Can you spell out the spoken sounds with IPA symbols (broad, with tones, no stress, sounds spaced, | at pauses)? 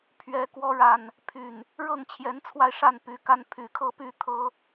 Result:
pʰ ɥ ɛ˨˦ k w ɔ˨˦ ɻ a˨˩ n | pʰ y˨˩ n | ɻ ɤ˥˨ ŋ t͡ɕʰ j ɛ˨˦ n t͡sʰ w a˧ ɪ̯ ʂ a˥˨ n p y˨˦ k a˦ n pʰ y˨˩ kʰ ɤ˥˨ p y˥˨ t̪ʰ ɤ˦